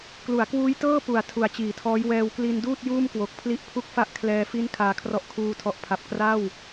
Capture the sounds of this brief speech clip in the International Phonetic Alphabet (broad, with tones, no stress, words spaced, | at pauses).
klu˩˦a̯kwuː˦˥jtɤː˥˩ pu˩˦a̯ tʰu˨˩a̯t͡ɕiː˩˦tʰɔː˦˥j wɛː˧wkli˧nduː˥˩t̚ juː˥˩mkwo˨˩k̚pʰli˦˥ʔ pʰu˦˥k̚fa˦˥ʔ kʰlɛː˧ fi˦˥n kʰaː˧kʰrɔ˦˥ʔ kʰuː˧tʰɔ˨˩ʔpʰa˨˩p̚ kra˥˩w